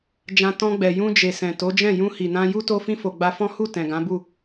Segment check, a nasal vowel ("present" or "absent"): present